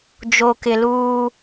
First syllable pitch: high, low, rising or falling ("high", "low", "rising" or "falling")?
high